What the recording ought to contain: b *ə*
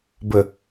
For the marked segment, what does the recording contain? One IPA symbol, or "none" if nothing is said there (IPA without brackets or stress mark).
ə